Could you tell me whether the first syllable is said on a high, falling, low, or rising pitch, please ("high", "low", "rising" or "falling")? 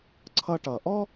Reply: high